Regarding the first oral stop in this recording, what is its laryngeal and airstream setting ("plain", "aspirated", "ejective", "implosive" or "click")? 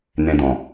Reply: plain